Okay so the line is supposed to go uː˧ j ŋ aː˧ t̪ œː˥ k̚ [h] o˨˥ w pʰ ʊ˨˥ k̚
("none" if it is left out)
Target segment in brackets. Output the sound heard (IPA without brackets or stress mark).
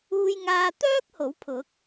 h